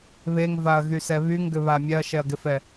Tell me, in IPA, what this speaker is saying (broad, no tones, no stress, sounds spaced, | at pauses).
β e ŋ v a ɐ̯ ɣ y s ɛ β y ŋ ɡ ʏ β a mʲ ɛ ɐ̯ ʃ ɛ ɐ̯ ɡ ɪ f ɛ